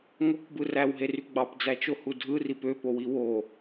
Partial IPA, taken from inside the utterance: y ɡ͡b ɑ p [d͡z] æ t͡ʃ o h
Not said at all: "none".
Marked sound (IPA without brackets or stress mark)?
d͡z